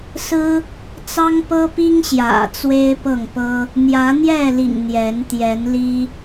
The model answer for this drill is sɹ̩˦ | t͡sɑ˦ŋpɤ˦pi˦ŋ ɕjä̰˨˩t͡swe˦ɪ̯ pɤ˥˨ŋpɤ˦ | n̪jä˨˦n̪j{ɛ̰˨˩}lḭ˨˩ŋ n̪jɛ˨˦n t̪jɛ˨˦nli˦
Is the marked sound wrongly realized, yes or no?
yes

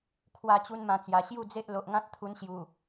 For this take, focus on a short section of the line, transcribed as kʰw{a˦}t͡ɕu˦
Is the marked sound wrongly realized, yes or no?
yes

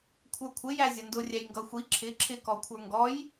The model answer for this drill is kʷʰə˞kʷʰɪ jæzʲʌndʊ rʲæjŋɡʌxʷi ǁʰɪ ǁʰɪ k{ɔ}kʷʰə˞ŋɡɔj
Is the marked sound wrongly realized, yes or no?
no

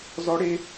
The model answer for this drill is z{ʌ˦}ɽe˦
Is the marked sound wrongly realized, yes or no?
yes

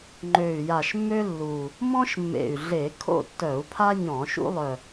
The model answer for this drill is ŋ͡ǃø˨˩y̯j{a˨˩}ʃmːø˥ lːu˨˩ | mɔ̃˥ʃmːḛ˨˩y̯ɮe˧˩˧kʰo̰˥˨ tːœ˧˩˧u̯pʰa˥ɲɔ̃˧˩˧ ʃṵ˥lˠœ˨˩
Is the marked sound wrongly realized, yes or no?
no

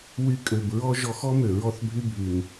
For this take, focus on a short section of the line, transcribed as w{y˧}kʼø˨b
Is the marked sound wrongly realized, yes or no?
no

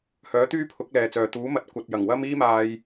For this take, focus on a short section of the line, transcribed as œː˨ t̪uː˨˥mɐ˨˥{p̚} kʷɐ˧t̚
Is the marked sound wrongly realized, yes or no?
yes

